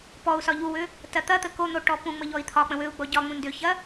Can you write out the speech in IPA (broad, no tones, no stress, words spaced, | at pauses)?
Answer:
pɔu̯ sɒʎuwʏ | tɐt̪ɐt̪ə kon̪o ʈɔpũŋ͡mə ʎɔi̯t̪ʰɒk͡pə̃ wʏu̯ɡ͡bɔ ɟɒŋ͡mũ ndʏçɐ